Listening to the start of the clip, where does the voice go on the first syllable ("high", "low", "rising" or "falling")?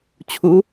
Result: rising